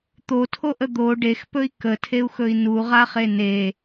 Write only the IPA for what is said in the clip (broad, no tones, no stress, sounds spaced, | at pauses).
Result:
t̪ o tʰ o ʔ ə d̪ o ɖ e x p ɵ i̯ k ə tʰ e u̯ x ɵ i̯ n u ʁ a χ e n e